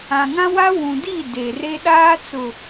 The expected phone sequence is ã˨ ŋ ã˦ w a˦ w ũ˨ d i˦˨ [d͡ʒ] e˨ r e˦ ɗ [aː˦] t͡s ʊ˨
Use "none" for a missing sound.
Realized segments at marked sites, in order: d, aː˦

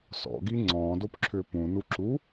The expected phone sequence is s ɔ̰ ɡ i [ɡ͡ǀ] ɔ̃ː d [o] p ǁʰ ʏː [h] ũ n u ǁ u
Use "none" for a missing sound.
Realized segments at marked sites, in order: ŋ͡ǀ, o, p

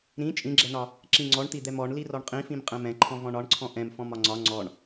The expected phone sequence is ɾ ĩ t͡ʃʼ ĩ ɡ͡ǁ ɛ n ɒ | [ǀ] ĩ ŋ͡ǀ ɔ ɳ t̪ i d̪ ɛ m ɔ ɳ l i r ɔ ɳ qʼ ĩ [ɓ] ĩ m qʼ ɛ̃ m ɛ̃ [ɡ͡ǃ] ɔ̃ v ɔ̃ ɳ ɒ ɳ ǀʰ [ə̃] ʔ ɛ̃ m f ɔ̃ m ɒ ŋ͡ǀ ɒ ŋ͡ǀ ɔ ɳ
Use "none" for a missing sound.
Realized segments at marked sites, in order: ǁ, f, ǃʰ, ɔ̃

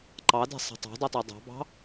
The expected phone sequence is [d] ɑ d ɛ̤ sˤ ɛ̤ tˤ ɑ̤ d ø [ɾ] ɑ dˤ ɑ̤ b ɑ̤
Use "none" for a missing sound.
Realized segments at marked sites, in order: ǃ, tˤ

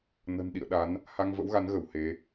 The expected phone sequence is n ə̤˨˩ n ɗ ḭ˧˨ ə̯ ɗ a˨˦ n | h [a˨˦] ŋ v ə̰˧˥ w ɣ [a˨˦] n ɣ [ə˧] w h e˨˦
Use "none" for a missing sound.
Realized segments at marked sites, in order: a˧, a˨˦, ə˧˩

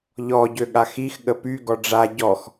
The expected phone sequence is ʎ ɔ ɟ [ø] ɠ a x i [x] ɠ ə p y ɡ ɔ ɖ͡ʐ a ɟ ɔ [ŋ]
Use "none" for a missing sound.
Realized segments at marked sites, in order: ø, x, x

